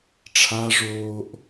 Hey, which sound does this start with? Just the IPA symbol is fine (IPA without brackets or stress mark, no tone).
ʈ͡ʂʰ